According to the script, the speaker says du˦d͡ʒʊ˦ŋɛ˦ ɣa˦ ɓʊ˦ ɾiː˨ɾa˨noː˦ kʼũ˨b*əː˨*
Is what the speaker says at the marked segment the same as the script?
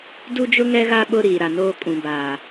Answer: no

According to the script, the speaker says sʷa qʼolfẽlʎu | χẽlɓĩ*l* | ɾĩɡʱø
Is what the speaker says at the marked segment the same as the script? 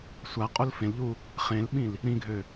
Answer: yes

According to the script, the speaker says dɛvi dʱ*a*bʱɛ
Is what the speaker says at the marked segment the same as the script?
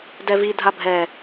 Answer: yes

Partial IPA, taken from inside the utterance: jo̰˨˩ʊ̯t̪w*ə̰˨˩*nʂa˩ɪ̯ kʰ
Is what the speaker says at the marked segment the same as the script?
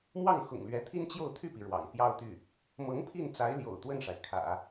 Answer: no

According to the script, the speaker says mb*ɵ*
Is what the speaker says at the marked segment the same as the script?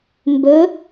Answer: yes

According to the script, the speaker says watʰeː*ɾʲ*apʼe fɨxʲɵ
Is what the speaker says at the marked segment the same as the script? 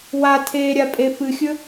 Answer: yes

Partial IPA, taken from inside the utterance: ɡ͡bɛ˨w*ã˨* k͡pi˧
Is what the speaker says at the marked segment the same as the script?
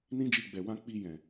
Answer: no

